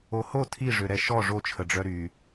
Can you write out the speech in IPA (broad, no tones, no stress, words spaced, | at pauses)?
oho tʰiʐøɾɛ ʃɔ ʐot͡ʃʰəɖ͡ʐœ ɾy